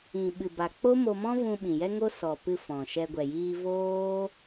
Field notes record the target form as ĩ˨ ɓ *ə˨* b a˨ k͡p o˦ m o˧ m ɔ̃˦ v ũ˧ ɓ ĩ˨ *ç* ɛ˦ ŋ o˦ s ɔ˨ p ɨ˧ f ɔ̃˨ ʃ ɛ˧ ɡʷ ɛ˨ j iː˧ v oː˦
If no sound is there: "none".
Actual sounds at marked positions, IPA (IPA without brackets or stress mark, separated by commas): ɨ˨, j